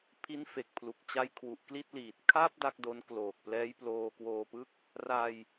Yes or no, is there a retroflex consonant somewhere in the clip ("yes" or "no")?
no